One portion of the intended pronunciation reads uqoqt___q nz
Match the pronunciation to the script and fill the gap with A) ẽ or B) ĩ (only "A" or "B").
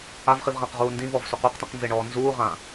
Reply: B